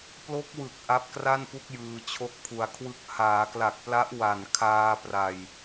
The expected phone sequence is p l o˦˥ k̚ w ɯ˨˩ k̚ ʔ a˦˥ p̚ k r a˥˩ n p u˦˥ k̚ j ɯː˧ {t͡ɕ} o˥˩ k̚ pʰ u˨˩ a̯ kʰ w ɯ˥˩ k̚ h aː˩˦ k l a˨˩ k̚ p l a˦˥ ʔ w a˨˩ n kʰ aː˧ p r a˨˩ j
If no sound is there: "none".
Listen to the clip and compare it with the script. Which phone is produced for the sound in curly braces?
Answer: t͡ɕʰ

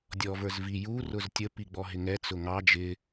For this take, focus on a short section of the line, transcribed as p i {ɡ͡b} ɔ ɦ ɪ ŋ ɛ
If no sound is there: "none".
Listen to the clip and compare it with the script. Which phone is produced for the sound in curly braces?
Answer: ɡ͡b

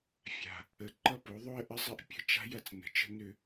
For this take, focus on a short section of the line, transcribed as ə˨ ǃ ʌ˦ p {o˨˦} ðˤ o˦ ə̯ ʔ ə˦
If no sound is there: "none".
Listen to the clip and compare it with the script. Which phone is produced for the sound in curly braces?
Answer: o˨˦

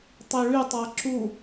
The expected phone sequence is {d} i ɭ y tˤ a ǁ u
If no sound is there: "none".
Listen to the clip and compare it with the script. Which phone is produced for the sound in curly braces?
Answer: tˤ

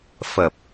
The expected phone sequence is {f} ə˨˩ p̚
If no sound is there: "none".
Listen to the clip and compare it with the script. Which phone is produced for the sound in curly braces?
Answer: f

